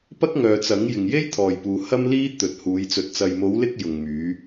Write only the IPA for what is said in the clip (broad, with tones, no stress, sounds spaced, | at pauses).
p ɐ˥ k̚ ŋ œː˨ t͡s ɐ˨˥ ŋ j ɪ˨ ŋ j e˥ j t̪ʰ ɔː˨ j p uː˨ h ɐ˥ m l iː˥ t̪ ɵ˨ t̚ h uː˨˧ j t͡s ɵ˨ t̚ t͡s ɐ˨ j m o˨˧ w l ɪ˧ k̚ j ʊ˨ ŋ m yː˨˧